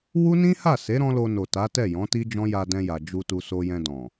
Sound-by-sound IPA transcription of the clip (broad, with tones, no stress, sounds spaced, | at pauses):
w u˦ n ĩ˦ h a˦˨ s e˨˦ ɾ ɔ̃˦ l o˧ n o˨ t a˨˦ t ɛ˦˨ j ɔ̃˨˦ t i˦ d͡ʒ ɔ̃˦ j a˧ d ɛ̃˧ j a˨ d͡ʒ u˧ t u˧ s o˧ j ɛ̃˧ d ɔ̃˨